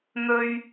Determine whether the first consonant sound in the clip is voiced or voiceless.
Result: voiced